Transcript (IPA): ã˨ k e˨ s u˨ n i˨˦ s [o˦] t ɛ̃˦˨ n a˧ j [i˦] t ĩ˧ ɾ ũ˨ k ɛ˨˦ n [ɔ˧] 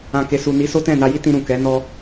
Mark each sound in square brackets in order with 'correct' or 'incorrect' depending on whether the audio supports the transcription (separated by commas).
correct, correct, incorrect